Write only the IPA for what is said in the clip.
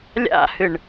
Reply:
lʲ a̰ h ɨ ɳ

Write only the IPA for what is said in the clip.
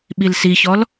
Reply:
ɓ i l s i ç ɔ l

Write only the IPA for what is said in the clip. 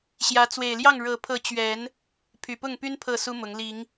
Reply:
ɕ j ä˨˦ t͡s w e˨˩ ɪ̯ l j ɑ˥˨ ŋ ɻ ɤ˨˩ pʰ ɤ˨˦ t͡ɕ ɥ ɛ˨˦ n | pʰ y˨˩ p ʊ˥˨ ŋ p y˦ n pʰ ɤ˥˨ s u˦ m ʊ˨˦ ŋ l i˨˦ ŋ

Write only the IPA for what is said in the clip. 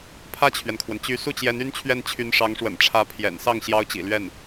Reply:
pʰ ä˥˩ t͡ɕʰ ɥ ɛ˩ n kʰ w ə˩ n t͡ɕ y˧˥ s u˥˩ t͡ɕ j ɛ˧˥ n y˥ n t͡ɕʰ ɥ ɛ˥˩ n t͡ɕʰ y˧˥ n ʂ ɑ˧˥ ŋ ʂ w ə̰˨˩ n ʈ͡ʂʰ ä˧˥ pʰ j ɛ̰˨˩ n s ɑ˥˩ ŋ ɕ j ɑ˥ ʊ̯ t͡ɕ ḭ˨˩ l ɥ ɛ˥˩ n

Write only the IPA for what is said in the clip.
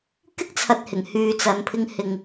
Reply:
k ɪ˥ k̚ t͡sʰ ɐ˨ t̚ h ɪ˨˩ ŋ h yː˨ t͡s ɐ˨ n pʰ ɪ˧ ŋ h ɪ˨ ŋ

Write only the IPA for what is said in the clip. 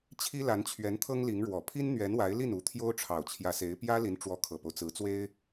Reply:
t͡ɕʰ i˥ l a˧˥ n t͡ɕʰ ɥ ɛ˧˥ n t̪ʰ ɤ˥ ŋ l i˧˥ ŋ ɻ w ɔ˨˩ pʰ i˥ n n̪ ɥ ɛ˧˥ n w a˧˥ ɪ̯ l i˥˩ n u˧˥ t̪ʰ j o˥ ʊ̯ ʈ͡ʂʰ ɑ˨˩ ʊ̯ t͡ɕʰ j ä˧˥ s e˧˥ ɪ̯ p j ä˥ l i˧˥ n ʈ͡ʂ w ɔ˧˥ kʰ ɤ˨˩ p o˦ ʊ̯ t͡s ɹ̩˧˥ t͡s w e˥ ɪ̯

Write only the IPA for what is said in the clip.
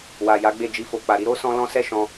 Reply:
w a˨ j a˨˦ ɡ͡b e˦˨ d͡ʒ i˧ f o˨ k͡p a˨ ɾ i˧ ɾ o˦ s ɔ̃˦ l ɔ̃˦ s ɛ˦ ʃ ɔ̃˧

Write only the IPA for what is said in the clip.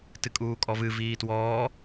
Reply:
t ɨ kʼ uː kʼ ɔ v ɨ v iː t w ɔː

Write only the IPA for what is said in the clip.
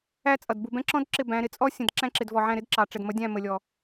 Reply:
æ˦ t͡sʼ ʌ˨ d b u˨ b ɛ̃˦ ǁ ɔ̃˦ d ǁ ɪ˦˨ b æ̃˨˦ ɾ ɪ˨ t͡sʼ ɔ˦ sʲ ə̃˨ d ǁ æ̃˦ ǁ ɪ˨ d v ɔ˨ ʕ æ̃˦˨ ɾ ɪ˦ d ǁ ɑ˨ ʈ͡ʂ ɛ˨ d m ʌ˨˦ dʲ æ̃˦˨ m ə˨ lʲ ɔ˨

